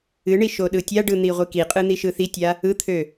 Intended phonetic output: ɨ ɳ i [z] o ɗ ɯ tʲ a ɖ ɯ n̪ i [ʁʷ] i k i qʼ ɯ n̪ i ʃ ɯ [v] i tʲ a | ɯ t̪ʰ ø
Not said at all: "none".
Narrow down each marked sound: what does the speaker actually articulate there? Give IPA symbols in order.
ʃ, ʁʷ, θ

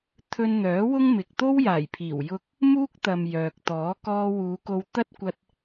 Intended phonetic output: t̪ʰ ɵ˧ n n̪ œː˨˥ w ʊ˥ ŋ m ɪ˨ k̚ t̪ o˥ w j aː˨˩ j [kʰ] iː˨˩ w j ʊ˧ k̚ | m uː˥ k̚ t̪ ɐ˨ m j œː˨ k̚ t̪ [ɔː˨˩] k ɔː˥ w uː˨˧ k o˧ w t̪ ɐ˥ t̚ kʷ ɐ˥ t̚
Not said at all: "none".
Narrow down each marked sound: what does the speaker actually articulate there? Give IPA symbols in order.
pʰ, ɔː˨˥

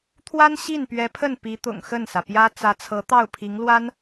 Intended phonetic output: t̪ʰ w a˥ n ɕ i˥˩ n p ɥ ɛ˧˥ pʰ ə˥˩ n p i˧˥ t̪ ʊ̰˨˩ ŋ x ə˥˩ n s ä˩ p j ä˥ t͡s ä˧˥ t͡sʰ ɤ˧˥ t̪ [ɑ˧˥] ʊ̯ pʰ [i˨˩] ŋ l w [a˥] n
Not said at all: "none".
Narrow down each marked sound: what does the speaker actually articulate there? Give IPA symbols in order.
ɑ˥˩, i˧˥, a˥

